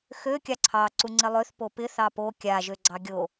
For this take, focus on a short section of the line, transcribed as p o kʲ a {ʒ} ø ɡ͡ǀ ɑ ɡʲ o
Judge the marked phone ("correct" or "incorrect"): correct